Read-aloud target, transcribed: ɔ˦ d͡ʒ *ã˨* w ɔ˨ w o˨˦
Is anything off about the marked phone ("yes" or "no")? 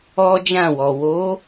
yes